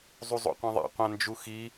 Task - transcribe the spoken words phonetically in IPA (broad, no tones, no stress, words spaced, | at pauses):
zˤuzˤo̰qʷĩðˤa̰ qʷãnd͡ʒuxi